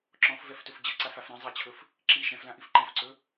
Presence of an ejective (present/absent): absent